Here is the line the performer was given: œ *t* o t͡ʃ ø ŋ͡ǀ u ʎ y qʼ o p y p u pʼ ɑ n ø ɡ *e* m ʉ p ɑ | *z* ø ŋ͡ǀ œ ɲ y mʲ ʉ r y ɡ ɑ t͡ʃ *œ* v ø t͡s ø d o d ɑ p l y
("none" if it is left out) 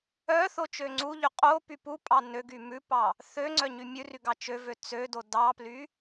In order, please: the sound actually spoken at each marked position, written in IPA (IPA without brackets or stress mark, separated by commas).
θ, y, θ, ø